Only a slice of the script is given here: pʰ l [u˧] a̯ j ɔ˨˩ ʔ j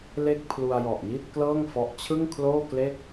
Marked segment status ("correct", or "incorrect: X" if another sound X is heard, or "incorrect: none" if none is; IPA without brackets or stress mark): correct